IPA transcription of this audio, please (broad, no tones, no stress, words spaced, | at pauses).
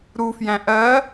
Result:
ɾufjæ̃ ʔɜ